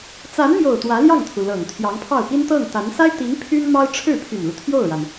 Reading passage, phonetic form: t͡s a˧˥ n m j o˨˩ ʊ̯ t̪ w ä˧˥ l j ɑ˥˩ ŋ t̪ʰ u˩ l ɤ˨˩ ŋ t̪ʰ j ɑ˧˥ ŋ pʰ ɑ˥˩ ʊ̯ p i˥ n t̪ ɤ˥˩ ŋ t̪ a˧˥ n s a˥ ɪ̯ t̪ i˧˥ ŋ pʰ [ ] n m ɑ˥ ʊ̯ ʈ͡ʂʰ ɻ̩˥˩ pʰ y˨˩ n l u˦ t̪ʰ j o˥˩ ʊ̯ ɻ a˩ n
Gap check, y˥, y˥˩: y˥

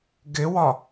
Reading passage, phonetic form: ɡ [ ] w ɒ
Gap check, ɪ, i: ɪ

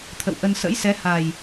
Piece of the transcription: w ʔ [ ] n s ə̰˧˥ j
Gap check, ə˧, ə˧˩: ə˧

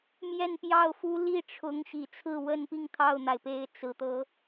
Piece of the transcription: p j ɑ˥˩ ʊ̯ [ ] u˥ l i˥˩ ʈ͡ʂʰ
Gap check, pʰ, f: f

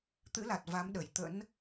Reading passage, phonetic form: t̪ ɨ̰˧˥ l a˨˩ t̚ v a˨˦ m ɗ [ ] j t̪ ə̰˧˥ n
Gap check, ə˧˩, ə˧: ə˧˩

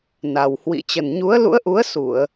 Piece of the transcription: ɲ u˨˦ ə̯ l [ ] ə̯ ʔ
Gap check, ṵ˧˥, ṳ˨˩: ṵ˧˥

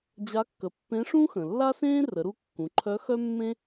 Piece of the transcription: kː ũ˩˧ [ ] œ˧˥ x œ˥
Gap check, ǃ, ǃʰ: ǃʰ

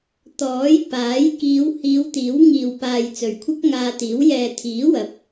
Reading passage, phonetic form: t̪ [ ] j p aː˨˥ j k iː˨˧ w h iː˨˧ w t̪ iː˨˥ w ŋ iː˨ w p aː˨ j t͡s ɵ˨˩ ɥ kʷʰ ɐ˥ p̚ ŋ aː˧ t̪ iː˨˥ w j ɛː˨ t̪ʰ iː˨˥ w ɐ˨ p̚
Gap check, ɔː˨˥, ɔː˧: ɔː˨˥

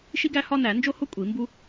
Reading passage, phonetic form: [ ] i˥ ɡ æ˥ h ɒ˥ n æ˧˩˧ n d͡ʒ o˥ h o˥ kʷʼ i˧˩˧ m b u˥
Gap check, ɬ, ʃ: ʃ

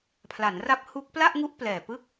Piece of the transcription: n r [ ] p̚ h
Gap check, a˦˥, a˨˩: a˦˥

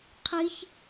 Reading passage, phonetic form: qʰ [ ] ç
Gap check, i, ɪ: i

